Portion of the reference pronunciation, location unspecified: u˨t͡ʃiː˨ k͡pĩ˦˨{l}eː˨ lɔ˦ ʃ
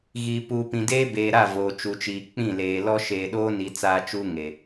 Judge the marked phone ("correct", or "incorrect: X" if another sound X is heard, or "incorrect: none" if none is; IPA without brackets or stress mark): correct